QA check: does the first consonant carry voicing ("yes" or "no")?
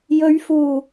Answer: yes